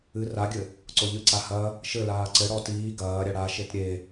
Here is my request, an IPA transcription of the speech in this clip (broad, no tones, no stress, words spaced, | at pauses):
ɨ raɡʲɘ | ǀoʎɨǀa hɐ | ʃɘlaː ǀɘɽɔ tiː ɡɐːɾʲa ɽaʃet ɾʲe